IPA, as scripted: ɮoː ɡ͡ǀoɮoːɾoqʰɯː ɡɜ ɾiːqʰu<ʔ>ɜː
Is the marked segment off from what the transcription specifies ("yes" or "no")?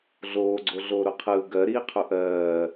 no